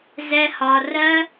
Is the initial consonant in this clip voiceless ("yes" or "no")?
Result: no